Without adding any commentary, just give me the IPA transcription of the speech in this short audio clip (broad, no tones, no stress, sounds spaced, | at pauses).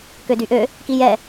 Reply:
k ø d y ʔ ø | k i j ɛ